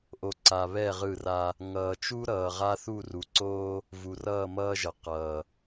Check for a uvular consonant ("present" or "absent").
present